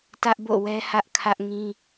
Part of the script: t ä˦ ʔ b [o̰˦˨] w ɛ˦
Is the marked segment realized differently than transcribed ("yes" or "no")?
no